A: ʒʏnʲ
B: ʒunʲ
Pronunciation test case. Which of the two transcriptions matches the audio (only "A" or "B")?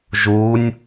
B